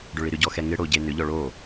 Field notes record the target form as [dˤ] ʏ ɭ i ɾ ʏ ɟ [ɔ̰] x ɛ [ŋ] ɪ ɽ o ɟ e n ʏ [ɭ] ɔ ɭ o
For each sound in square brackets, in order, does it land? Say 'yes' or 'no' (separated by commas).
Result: no, no, yes, no